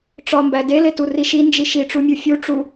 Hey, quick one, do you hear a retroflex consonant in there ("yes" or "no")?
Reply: yes